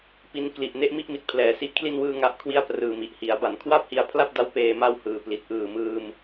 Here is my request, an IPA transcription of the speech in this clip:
p i˦˥ n k l i˨˩ ʔ n e˥˩ ʔ m i˥˩ ʔ m i˨˩ t̚ pʰ l ɛː˩˦ s i˦˥ ʔ kʰ l i˥˩ n w ɯː˥˩ ŋ a˥˩ ʔ kʰ w i˥˩ a̯ p r ɯː˨˩ m i˨˩ ʔ h i˩˦ a̯ b a˩˦ n kʰ w a˥˩ p̚ h i˧ a̯ pʰ l a˥˩ p̚ d a˦˥ w p eː˧ m a˥˩ w h ɯː˨˩ p l i˨˩ t̚ ʔ ɯː˨˩ m ɯː˧ m

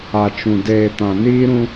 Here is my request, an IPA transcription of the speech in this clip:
a˨ t͡ʃ ũ˨ d eː˨ t ã˨ n iː˦ ɾ ũ˦

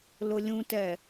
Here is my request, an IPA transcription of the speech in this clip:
l ʊ lʲ ũ t ɛ

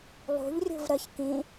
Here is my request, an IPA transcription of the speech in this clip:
lˠ ṳ ʎ rʲ ṳ v ɾ ə ç k ĩ

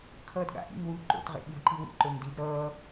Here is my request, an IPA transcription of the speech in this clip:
kʰ ʌː d ɠ a̰ ʔ ḭ ŋ w u ǃ o̰ t ʁ ḛ ɓ i d ǃ i w ḭ ǃ o ŋ d i d ɾ ʌː

